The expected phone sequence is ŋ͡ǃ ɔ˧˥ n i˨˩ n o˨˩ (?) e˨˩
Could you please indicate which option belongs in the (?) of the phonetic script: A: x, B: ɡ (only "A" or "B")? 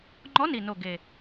B